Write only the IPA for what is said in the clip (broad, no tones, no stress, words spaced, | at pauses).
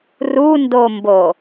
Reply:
rundombo